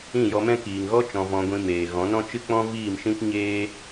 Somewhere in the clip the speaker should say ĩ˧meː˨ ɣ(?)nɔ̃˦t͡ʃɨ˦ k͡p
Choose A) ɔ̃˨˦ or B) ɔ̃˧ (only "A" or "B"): A